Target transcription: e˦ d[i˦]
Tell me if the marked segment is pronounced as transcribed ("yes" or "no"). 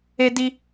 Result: yes